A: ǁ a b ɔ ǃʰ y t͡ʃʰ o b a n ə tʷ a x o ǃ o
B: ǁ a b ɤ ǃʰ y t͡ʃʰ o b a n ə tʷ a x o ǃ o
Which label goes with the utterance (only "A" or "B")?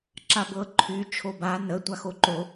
B